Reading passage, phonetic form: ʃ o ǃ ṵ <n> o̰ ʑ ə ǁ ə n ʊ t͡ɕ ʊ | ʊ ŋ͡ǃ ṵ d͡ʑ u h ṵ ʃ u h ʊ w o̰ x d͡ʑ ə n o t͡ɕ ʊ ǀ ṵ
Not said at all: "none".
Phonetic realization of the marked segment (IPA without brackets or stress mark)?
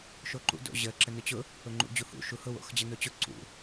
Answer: d